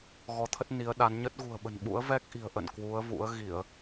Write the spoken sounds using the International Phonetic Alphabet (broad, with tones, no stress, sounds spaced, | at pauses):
ɣ ɔ˨˦ t̪ʰ ə˦˥ t̚ n i˨˦ ə̯ ɗ a˨˦ n ɲ ə˦˥ t̚ ɣ ṳ˨˩ ə̯ ɓ ə̤˨˩ n ɓ ṵ˧˥ ə̯ v ɛ˦˥ k̚ ʔ i̤˨˩ ə̯ ʔ ə̰˧˨ n k w u˨˦ ə̯ v ṵ˧˥ ə̯ ɣ i˧˩˨ ə̯